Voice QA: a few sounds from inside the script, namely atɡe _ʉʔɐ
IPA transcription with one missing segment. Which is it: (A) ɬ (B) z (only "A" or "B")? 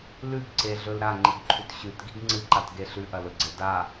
A